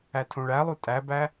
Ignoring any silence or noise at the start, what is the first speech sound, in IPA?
æ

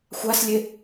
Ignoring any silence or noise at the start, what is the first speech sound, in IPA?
xʷ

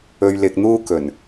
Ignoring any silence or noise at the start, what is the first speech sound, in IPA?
ɵ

